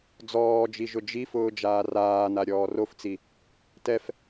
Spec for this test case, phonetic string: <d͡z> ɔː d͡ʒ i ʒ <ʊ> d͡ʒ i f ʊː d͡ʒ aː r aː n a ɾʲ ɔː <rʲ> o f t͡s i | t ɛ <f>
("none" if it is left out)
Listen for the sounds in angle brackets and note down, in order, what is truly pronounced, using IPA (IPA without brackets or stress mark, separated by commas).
d͡z, ʊ, r, f